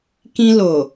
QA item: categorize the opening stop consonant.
plain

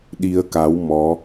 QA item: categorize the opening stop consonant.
implosive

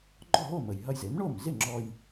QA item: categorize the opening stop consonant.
click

